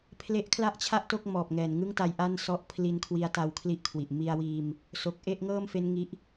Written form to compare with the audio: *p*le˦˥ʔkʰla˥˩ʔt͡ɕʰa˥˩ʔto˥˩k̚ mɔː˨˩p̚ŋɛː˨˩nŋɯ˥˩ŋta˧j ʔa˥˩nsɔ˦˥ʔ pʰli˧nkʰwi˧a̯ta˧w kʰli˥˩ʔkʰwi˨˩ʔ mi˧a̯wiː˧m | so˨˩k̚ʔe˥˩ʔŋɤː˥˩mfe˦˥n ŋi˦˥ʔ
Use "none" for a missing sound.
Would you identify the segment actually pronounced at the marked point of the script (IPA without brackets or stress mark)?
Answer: pʰ